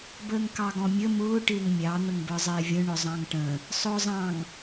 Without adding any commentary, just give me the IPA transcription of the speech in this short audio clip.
bəːŋkɑɡɔ̃mʲə mʊː ʈɪːŋmʲɑ n̪əŋbə˞zˤɪːvʲə̃ ɳʊzˤɑ̃ŋʈə̃ | sˤʊːzˤɑ̃ŋ

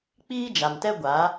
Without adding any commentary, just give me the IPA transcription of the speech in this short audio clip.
k͡piː˦d͡ʒa˨mtɛ˦ ɡʷa˨˦

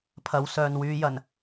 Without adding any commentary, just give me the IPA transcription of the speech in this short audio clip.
pʰɐ˨˧wsœː˨nwyː˨˧jɐ˨˩n

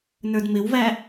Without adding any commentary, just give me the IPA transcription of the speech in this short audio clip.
nə˞dmɪwvæ

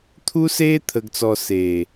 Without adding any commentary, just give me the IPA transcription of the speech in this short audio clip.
t̪ʰuː˦s eː˦ t̪ʰə˨ɡt͡sɔ˨ seː˨

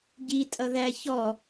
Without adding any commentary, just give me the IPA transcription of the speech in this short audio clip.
ɟi tʼʌðæ çɔ

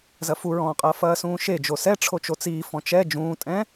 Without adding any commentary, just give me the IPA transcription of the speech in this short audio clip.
zɐfuɹɔ̃ːqʼɐː fɐːsũːʃe d͡ʒosɛ ʈ͡ʂʰot͡ʃot͡siː fɔ̃t͡ʃɛ d͡ʒũːtʼɛ̃

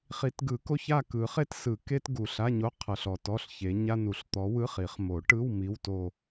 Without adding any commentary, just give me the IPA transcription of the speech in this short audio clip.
χi˨˩˦tɡɯ˨˩˦ko˧˥˧ç a˥˧kɯ˨˩˦χe˥tsɯ˨˩˦ ke˥t ɡu˨˩ɬa˧˥˧ɲo˧˥˧ qʰɤ˨˩ɬɔ˨˩ tɔ˧˥˧ɬ çe˨˦ɲa˥nu˨˩˦ɬ t̪ɔ˨˦wɯ˧˥˧χ i˨˩˦χ mo˨˩˦ʈɯ˧˥˧w mi˧˥˧wto˥˧

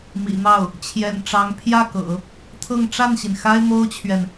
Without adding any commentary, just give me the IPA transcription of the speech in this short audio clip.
mḭ˨˩n̪ɑ˥˩ʊ̯ | t͡ɕʰjɛ̰˨˩n ʈ͡ʂɑ˧˥ŋ pʰjä˥˩kɤ̰˨˩˦ | t̪ʰɤ˥˧ŋ ʈ͡ʂa˥˩nɕi˩n xa˥ɪ̯mo˥ʊ̯t͡ɕʰɥɛ˨n

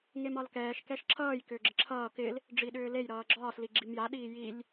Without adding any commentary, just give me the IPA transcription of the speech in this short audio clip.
ŋemɒlkɛːʃ kɛʃǁʰʌːj kʏːɡ͡ǁɪǁʰʌː kɪl | ɖ͡ʐiɗʏːlej ɾʌːɡ͡ǁɒːs liɡ͡ǁimja ɗiːjilʲ

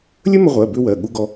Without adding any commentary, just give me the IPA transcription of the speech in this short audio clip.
lʲə˥mə˧ʁʷɜ˩˧˩bʏ˧ wɜ˩˧˩ ɠu˥ɡɔ˥

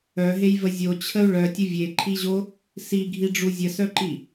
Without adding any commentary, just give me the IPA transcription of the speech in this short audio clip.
œɦejvə zʲot͡ɕʰəu̯ ɭœtʲə vʲeǃʰiʑo | siɡʱiɖ͡ʐu zʲəsœǃi

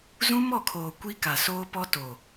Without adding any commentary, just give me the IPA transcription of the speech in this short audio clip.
zũ˦mɔ˦˨kʰoː˨ kʷi˦ka˨soː˦pɔ˦ to˨

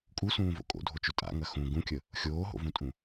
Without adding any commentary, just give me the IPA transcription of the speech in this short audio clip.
kʼusũːvo̰ kʼo̰dʱot͡ʃʊ tʼa̰ŋɐ xũ ɡũkʲə | xʲoːɦo̰vũtʼũ

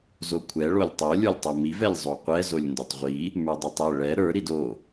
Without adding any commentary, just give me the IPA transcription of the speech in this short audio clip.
zokʷʰɛ ɭolʲtˤo lʲə˞lʲtˤomiv ɛlʲzˤoqʷɛ zolʲndotˤʁʷi | mə˞dˤɛtˤɛ ɭɛ ɾə˞ ɾido

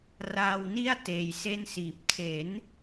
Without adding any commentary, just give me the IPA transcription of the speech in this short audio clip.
raː˧wni˥˩a̯ teː˧jse˥˩nsiː˨˩p̚ tʰe˩˦n

